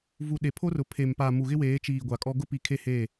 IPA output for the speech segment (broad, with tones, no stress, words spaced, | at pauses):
vu˨ ɗe˨pʰo˦rʊ˨ pʰe˨mpa˨ mu˨ɣɪ˦weː˨˦t͡ʃiː˨ ɡʷa˨kʼɔ˦ ɡʊ˦pi˨ kʰe˦he˦˨